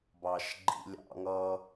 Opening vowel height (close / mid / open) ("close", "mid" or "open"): open